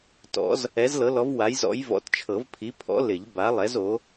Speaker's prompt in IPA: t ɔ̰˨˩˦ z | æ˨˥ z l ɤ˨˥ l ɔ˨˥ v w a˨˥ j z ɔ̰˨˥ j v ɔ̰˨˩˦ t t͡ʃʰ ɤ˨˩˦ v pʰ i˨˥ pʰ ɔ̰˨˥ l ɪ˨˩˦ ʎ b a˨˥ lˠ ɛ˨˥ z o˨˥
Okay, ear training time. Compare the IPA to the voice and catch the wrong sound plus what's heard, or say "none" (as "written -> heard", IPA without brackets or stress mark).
æ˨˥ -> ɛ˨˥